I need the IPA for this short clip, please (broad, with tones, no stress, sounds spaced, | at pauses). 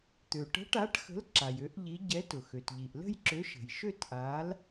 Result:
t̪ ø˩ ʈ ə̤˨˥ ʈ a˨˥ ʈ x ə̤˨˥ l ǁ a˩ j ø˨˥ ʔ ʎ i˨˥ ɟ ɛ˨˥ t ʊ˩ x ø˩ t ʎ i˩ ʔ l ə̤˥˧ j ǁ ø˨˥ ʃ ə̤˩ j ʃ ø˥˧ t ʔ a˨˥ l